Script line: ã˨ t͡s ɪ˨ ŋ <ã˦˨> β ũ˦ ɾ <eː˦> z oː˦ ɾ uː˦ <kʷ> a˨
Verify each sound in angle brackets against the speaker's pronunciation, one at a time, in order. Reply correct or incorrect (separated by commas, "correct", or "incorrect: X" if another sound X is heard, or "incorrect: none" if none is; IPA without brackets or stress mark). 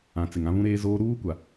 incorrect: ã˦, correct, correct